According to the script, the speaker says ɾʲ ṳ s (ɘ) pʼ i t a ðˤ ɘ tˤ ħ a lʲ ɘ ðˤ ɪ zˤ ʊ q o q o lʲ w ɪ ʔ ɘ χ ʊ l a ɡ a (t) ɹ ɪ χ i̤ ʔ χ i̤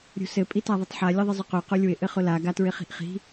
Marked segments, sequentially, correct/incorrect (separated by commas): correct, correct